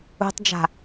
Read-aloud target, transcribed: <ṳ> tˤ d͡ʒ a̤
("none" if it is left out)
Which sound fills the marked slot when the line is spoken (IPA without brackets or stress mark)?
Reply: ṳ